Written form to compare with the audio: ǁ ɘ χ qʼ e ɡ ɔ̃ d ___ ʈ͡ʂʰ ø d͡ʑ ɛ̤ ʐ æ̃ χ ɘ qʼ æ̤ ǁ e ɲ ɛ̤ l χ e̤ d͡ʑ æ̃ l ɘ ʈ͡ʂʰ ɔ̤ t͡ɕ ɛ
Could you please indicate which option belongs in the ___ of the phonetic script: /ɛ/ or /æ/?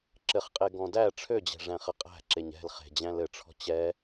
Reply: æ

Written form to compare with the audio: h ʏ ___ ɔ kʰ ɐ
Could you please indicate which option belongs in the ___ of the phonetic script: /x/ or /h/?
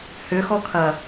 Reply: x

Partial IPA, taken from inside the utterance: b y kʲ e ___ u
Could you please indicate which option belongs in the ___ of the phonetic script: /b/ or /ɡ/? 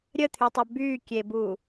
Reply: b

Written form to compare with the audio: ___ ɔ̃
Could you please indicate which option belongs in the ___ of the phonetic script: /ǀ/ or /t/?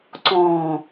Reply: ǀ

